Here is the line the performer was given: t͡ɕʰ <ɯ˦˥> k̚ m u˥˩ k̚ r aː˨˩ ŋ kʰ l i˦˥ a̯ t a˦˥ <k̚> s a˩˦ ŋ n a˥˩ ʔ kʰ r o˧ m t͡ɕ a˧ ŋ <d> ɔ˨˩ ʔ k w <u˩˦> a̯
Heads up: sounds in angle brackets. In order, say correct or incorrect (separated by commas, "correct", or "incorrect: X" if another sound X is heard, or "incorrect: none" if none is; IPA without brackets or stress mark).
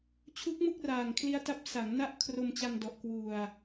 incorrect: u˦˥, incorrect: p̚, correct, incorrect: u˨˩